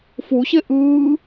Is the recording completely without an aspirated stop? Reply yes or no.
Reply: yes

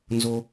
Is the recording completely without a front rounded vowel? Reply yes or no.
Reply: yes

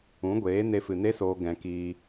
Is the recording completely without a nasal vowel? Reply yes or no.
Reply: no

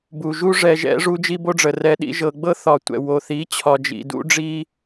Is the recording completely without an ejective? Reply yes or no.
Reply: yes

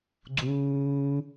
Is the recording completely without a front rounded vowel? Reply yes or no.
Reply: yes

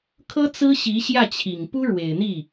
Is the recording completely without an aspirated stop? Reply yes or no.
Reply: no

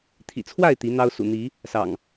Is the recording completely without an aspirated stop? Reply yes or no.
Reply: no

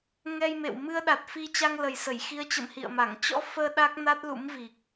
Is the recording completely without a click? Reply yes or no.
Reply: yes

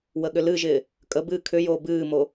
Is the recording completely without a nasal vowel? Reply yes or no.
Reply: yes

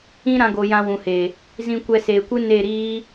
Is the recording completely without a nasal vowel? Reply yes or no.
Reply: no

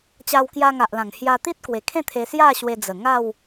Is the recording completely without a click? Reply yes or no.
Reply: yes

